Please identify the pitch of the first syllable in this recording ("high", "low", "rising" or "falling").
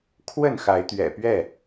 falling